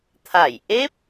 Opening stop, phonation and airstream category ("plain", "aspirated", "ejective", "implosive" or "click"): aspirated